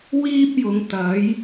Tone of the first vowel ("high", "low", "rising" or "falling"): high